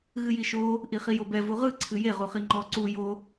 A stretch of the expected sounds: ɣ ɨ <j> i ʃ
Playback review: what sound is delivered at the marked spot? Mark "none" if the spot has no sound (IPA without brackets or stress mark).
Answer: j